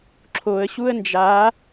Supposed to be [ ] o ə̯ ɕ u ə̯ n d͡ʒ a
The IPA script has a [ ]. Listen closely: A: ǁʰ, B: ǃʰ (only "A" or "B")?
A